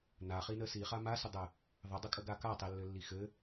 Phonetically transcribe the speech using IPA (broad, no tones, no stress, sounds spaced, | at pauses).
n a χ i n ə s i χ a m a s ə dˤ ɘ | ðˤ ə dˤ ə kʼ ə ɡ a k a tˤ i lː ɘ lː i x ɘ